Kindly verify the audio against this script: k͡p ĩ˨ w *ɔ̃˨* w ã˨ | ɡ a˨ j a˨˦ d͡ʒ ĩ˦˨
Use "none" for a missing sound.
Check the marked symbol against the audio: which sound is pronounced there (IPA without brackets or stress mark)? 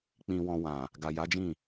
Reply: ɔ̃˨